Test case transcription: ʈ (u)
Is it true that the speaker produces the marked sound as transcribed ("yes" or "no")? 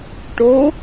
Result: no